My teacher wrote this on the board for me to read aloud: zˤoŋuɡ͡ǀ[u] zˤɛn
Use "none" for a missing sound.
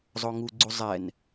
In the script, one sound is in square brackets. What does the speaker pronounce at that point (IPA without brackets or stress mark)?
u